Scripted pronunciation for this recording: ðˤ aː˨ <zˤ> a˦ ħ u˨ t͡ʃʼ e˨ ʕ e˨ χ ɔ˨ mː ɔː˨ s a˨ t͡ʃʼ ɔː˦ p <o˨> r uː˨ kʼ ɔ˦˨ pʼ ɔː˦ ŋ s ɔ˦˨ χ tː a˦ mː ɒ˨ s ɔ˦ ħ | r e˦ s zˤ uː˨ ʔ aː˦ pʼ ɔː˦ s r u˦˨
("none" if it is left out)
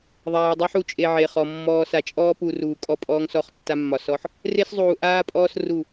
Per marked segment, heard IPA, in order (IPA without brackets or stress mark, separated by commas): dˤ, u˨